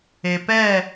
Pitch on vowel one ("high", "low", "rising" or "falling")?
low